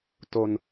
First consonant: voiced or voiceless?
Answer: voiceless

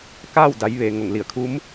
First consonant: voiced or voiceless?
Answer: voiceless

